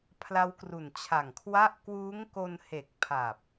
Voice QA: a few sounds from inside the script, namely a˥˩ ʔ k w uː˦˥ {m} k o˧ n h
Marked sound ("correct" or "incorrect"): incorrect